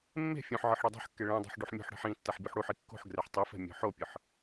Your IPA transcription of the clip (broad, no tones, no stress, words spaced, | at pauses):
mːe̤ fʲõħʕɯħ ɽedˤɛ̤ħkːe ɭẽdˤṳħ ɖuħmʲo̤ħɽɛ̤ħ ĩ tːaħbʲuħɽuħi kːo̤ħɡrɛħ tˤifɛ̤ mʲɔ̤ħopʲɯħ